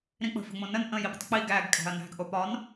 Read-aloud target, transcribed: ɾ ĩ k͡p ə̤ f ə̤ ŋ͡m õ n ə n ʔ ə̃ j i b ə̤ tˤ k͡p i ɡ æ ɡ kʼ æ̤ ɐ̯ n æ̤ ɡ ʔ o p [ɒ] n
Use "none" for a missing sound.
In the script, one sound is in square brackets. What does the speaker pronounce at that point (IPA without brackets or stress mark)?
ɒ